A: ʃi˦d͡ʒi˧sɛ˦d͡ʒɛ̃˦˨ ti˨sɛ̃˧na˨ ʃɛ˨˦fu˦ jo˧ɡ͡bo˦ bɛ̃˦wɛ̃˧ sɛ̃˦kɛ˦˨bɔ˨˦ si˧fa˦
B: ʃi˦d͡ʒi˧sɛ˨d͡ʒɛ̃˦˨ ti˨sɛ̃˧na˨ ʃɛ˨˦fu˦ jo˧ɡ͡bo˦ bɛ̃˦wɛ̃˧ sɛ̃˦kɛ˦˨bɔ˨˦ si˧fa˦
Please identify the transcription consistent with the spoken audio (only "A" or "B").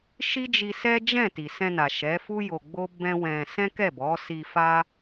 A